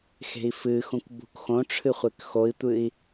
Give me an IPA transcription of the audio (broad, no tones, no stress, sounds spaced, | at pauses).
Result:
x e̤ i̯ f ɨ x ũ k b ṳ k x õ ʈ͡ʂʰ ɨ χʷ e k x o i̯ tʷ ɨ i̯